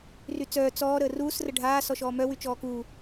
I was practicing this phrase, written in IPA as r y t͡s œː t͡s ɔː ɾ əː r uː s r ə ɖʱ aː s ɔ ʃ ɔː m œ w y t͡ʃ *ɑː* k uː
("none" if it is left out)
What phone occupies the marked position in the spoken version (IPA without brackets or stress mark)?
ɔː